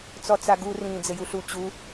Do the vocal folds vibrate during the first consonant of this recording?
no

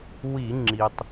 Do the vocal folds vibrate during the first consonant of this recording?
yes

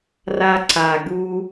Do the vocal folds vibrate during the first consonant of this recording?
yes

